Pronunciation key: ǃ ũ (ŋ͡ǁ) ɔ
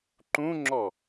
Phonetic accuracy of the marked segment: correct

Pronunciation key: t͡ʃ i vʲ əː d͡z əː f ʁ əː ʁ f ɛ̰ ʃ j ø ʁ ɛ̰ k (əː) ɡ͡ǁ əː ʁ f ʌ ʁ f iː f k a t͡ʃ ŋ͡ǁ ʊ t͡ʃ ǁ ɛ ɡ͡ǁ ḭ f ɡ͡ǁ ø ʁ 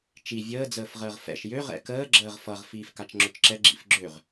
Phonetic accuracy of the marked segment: correct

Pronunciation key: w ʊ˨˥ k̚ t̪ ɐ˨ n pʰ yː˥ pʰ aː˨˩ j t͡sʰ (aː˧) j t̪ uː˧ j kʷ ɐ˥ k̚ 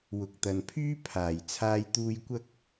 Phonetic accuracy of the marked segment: correct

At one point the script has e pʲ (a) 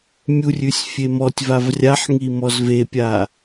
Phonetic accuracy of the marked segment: correct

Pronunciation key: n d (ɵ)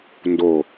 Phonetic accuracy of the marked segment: incorrect: o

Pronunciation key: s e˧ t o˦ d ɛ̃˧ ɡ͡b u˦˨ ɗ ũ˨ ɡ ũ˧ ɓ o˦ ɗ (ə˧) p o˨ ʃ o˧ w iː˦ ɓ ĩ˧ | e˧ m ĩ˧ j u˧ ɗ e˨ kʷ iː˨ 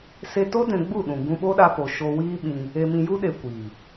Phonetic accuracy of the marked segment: incorrect: a˧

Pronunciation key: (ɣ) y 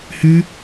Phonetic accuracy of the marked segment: incorrect: h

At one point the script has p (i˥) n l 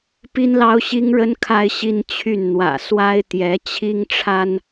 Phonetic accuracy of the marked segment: correct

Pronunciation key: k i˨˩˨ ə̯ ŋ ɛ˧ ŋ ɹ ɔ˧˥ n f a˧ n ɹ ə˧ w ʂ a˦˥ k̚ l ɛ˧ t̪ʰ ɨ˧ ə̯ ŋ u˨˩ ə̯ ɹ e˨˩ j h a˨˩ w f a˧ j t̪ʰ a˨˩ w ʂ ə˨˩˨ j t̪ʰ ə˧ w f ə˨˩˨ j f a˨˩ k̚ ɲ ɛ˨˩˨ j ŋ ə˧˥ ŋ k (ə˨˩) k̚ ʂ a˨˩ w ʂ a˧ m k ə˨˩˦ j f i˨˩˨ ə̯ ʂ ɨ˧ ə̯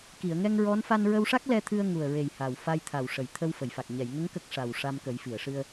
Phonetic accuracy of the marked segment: incorrect: ə˦˥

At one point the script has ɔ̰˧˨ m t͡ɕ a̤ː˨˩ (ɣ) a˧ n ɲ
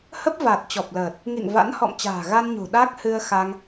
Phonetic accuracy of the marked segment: correct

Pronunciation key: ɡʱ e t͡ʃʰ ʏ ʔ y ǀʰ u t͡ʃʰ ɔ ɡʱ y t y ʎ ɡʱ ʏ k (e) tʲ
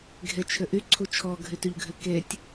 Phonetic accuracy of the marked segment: correct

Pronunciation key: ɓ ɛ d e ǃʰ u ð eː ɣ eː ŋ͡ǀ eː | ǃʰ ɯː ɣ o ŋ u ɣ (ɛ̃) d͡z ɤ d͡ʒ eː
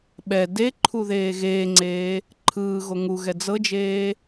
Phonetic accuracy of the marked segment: incorrect: ɛ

